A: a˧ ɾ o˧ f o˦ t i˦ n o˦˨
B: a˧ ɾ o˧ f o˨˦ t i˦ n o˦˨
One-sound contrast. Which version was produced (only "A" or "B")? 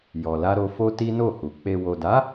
A